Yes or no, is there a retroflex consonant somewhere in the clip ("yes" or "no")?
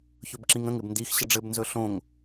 yes